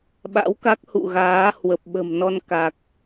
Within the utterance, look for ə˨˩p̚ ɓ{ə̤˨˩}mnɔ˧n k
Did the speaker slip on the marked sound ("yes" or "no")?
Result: no